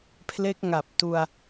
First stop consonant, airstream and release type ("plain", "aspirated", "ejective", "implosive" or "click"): aspirated